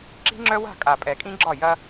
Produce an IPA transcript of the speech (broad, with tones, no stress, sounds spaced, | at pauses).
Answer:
ǁ i̤˦ ŋ͡ǁ œ˦ w a̤˦˨ kʼ a˨ pʼ ɛ˨ kʼ ĩ˦ ɡ͡ǁ ɒ˦˨ j ɐ˦